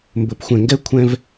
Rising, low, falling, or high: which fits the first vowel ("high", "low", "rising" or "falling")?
low